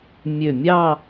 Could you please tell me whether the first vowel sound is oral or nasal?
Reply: oral